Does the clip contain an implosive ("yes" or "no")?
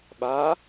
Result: yes